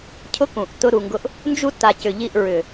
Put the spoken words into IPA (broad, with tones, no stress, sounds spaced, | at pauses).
cʰ ʊ˦ k ũ˨ ʔ t ʊ˦ ɾ u˨ ŋ ɡ ʊ˦ ʔ | n d͡ʒ u˦ t a˨ c ʏ˨ ʎ i˦˨ ʔ ɹ ʏ˨